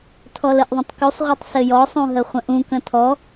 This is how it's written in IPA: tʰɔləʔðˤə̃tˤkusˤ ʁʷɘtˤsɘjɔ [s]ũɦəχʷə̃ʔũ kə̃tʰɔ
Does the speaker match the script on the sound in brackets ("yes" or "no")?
no